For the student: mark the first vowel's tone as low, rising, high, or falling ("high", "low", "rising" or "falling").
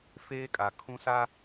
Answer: high